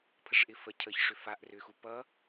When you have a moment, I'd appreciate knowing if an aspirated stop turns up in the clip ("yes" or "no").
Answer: yes